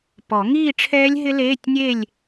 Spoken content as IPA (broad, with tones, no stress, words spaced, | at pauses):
pɔ˨˩˦ ŋiː˥˧ʈ͡ʂʰɛː˦˥lʲɦɪ˦˥ leː˧˥˧tʲnʲe˥˧lʲ